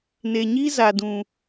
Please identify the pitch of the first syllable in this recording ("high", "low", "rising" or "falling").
low